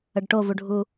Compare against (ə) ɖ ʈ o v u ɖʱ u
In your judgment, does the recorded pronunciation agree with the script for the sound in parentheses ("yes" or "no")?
yes